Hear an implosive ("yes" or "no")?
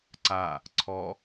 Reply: no